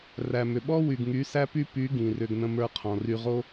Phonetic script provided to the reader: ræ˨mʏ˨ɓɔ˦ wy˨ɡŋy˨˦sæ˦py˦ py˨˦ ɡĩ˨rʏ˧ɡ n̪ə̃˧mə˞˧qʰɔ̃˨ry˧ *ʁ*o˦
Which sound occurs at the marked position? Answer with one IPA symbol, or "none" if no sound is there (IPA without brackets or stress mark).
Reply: ʁ